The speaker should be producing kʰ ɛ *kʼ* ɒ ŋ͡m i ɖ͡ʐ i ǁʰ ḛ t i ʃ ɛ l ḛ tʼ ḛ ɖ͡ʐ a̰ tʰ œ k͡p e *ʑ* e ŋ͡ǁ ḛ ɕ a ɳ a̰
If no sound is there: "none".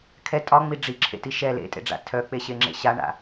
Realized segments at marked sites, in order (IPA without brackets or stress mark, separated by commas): tʼ, ɕ